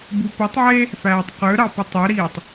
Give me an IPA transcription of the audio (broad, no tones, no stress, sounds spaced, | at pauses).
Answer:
b u p u tˤ ʕ e | f æː tˤ q ø ɾ ɑ p u tˤ ø ɾ iː tˤ